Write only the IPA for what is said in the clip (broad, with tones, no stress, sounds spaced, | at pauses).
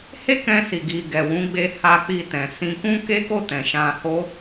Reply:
h e˦ k ɛ̃˧ s i˨ ɡ i˨ ɡ ɛ˨ w ũ˨˦ ɡ͡b e˧ h a˧ k͡p i˧ t ɛ̃˨ s ĩ˧ k ũ˦ k e˦ k o˦˨ t ɛ̃˨ ʃ ã˧ h o˦